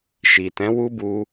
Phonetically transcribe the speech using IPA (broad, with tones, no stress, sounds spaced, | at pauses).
ʃ i˨ t ɛ̃˨˦ w u˦ b u˧